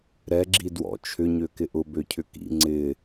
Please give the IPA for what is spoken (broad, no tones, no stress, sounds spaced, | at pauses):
ɾ ɛ ɡ͡ǁ i d w ɔ̰ t͡ʃʰ ʏ ɲ ø k ɪ ʔ ʊ b ø cʰ ʏ k ḭ ŋ͡ǀ ɪ